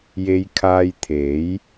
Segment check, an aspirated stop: present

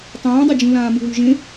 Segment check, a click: absent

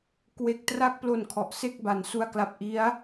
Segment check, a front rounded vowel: absent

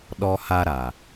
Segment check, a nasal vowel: absent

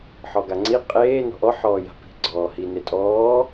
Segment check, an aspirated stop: absent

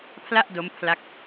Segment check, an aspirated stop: present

